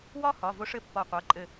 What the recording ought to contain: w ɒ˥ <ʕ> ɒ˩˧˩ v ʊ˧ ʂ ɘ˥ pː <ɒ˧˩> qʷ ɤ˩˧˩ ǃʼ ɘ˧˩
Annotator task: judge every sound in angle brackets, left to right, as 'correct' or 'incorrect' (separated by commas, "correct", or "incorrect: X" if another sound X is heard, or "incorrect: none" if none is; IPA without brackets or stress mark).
incorrect: h, correct